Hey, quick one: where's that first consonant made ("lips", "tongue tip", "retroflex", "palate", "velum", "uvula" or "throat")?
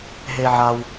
throat